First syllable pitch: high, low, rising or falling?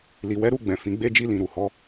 low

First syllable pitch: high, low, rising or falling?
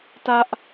high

